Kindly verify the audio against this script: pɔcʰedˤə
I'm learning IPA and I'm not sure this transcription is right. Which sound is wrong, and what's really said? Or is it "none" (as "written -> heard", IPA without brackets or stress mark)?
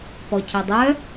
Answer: ə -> œ